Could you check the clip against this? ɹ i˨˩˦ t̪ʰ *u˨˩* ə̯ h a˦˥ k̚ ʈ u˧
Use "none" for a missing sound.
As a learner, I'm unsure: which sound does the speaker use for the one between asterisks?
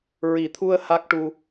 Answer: u˧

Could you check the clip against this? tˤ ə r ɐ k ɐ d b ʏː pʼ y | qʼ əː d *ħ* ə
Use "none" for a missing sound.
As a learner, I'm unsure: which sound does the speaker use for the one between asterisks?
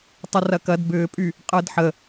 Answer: ħ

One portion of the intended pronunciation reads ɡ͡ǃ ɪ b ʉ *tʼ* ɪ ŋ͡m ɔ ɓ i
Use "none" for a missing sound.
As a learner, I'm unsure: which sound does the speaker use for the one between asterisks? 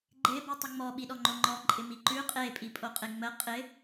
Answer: tˤ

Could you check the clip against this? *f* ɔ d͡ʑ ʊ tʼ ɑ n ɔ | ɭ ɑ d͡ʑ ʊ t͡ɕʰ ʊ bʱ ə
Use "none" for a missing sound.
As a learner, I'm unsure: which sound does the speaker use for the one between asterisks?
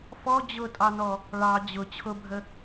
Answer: f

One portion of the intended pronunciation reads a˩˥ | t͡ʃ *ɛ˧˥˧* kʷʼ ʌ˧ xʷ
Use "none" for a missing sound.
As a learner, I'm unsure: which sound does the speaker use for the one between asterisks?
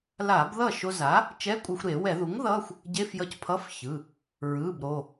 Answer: ɛ˧˥˧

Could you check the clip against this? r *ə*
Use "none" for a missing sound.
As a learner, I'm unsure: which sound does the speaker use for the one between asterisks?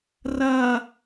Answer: ɐ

